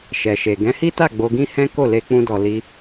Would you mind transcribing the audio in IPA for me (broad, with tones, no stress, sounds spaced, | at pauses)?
ʃ ɛ˨ ʃ e˨ ɡ ɛ̃˨˦ h i˦ t a˦˨ ɡ͡b o˧ ɡ ĩ˦ h ɛ̃˦ k o˦˨ l e˧ k͡p ũ˧ d ɔ˨ l i˧